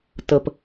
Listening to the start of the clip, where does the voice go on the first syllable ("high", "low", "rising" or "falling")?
low